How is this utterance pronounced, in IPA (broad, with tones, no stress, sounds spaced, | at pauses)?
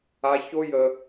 a˦ ç o˦ j ə˦